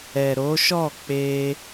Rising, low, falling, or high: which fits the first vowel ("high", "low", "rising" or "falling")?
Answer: low